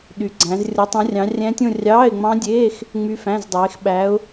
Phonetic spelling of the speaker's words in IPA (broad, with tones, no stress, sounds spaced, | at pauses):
ɗ y˨˦ ɡ͡ǀ æ̃˨˦ z rʲ o˨˦ tˤ ũ˨˦ rʲ ɑ̃˨˦ rʲ æ̃˦˥ tʲ õ˥˧ rʲ ɑː˧˥˧ ɪ̯ ŋ͡m ɑ̃˦˥ dʲ eː˧˥˧ x | ŋ͡m y˦˥ f æ̃˧˥˧ z dˤ eː˨˦ x ɓ æ˨˦ ʊ̯